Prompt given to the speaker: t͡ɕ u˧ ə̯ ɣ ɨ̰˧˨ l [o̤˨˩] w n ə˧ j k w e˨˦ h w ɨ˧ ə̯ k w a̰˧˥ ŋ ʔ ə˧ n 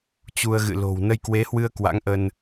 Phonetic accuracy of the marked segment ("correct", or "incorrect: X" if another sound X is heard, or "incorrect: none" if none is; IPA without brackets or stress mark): correct